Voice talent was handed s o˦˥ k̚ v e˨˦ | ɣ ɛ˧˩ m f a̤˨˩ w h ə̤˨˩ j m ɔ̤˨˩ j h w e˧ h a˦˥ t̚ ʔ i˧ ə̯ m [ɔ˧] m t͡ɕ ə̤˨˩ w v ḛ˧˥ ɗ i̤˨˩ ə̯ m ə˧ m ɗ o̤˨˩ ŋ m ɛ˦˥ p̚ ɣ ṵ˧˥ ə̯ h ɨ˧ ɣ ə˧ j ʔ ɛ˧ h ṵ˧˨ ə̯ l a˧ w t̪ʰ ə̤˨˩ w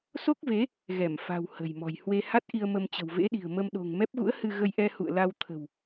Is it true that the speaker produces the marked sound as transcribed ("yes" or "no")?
no